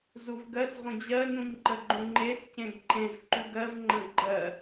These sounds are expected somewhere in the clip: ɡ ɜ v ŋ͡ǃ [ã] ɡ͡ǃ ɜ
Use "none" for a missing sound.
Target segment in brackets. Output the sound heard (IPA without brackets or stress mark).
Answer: ə̃